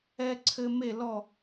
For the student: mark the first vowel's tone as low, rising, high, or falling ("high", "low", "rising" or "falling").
high